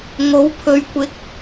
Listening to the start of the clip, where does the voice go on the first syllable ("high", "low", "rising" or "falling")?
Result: rising